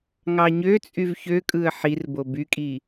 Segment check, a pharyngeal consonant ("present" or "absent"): present